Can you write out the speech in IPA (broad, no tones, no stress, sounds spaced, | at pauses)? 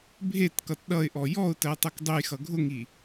bʱ e t k ʌ t ɗ ʌ ɪ̯ ʔ ɔ j ɔ ʊ̯ t ɜ tˤ ʌ k dˤ ʊ j x ʌ ɡʱ ʊ ŋ i